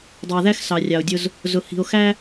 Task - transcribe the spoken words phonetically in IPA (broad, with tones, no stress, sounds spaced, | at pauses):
dˤ æ˨ ð æ˦ x s ɑ˨ rʲ ɑ˨ o̯ dʲ ʊ˦ z | z ʊ˨ h i̤˨ o̯ x æ˦